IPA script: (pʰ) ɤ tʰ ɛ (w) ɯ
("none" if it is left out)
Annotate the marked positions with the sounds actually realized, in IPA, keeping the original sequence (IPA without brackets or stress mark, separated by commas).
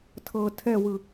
tʰ, w